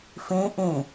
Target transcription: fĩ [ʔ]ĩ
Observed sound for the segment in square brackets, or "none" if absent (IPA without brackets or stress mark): ʔ